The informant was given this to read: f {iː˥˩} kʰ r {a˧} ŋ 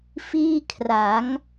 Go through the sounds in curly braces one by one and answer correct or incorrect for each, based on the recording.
correct, incorrect: a˩˦

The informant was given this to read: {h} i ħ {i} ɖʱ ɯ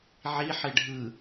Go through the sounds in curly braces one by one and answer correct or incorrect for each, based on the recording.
incorrect: ʕ, incorrect: e

